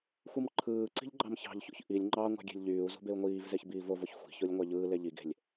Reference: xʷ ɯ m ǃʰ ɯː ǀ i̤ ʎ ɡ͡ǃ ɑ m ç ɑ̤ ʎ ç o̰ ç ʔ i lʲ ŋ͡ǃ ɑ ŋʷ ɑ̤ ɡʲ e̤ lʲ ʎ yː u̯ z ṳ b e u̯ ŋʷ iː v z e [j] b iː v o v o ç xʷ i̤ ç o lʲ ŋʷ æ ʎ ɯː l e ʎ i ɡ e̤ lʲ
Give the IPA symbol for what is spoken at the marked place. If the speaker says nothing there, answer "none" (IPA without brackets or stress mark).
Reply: ç